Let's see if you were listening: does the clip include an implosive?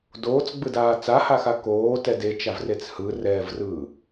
no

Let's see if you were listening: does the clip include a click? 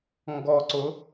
yes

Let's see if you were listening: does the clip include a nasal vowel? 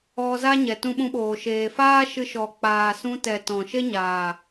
yes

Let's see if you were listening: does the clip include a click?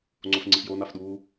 yes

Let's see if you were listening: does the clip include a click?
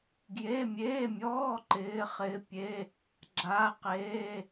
yes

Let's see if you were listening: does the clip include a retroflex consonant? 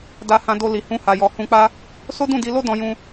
no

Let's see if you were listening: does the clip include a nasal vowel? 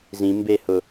yes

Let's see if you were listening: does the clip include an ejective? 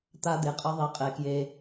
yes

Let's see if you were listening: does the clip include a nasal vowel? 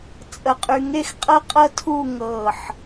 no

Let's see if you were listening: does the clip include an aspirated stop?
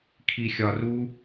yes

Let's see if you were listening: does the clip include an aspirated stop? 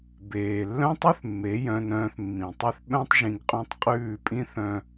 no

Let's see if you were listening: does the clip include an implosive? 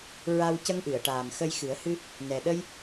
yes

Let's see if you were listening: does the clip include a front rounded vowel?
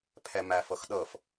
no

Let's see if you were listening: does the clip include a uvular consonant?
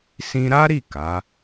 no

